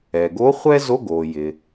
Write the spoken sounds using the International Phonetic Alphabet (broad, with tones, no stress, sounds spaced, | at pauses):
ɛ˩ ɡ o˧˥ χʷ ɛ˥ z o˧˥˧ ɡ o˩ j ɪ˩